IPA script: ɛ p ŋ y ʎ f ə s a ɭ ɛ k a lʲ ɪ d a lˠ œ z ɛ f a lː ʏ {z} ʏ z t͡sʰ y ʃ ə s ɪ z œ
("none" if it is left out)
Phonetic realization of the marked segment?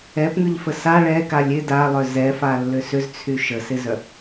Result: s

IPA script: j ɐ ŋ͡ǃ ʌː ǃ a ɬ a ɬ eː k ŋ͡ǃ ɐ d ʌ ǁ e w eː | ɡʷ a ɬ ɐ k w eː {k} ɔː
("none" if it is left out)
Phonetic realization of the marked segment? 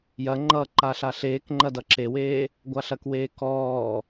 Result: k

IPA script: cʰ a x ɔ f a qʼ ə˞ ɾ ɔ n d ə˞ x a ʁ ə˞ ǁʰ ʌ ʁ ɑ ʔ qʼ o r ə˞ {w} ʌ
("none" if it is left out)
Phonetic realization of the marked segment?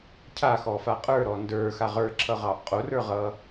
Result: ʁ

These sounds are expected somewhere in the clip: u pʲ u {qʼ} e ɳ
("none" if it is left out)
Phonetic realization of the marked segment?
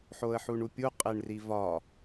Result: qʼ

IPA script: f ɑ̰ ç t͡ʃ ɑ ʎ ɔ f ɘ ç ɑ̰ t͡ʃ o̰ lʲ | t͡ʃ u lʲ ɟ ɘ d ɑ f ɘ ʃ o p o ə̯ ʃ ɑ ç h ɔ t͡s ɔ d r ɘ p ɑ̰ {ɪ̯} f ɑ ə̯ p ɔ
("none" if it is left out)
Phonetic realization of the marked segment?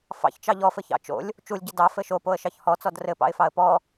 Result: ɪ̯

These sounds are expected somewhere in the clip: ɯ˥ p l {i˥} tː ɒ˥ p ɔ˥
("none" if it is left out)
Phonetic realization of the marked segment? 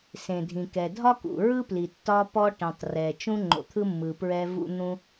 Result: i˩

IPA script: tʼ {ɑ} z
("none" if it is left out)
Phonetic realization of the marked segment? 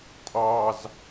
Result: ɑ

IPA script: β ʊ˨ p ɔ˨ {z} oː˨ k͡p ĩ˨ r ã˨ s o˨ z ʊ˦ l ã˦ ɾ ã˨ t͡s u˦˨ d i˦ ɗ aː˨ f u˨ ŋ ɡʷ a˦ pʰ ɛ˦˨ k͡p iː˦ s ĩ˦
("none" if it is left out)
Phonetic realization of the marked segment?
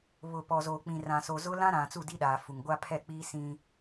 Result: z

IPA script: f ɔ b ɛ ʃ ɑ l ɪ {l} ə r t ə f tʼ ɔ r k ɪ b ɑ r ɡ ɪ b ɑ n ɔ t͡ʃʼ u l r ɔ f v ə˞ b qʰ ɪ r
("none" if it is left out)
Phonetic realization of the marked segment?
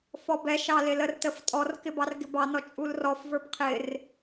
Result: l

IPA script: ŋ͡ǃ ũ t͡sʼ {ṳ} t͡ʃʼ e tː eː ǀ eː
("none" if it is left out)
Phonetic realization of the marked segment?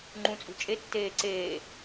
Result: ṳ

